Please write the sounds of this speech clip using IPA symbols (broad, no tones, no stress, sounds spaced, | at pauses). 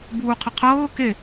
b uː qʰ ə qʰ ɤː k e